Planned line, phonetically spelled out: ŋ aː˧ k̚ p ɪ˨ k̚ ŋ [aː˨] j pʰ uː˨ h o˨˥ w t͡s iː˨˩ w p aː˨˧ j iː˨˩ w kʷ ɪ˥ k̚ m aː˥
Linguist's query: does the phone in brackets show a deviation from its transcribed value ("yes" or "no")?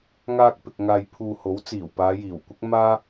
no